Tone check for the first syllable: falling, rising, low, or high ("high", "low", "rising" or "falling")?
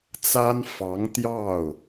high